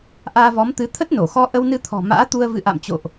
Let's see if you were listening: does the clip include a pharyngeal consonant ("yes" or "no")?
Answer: no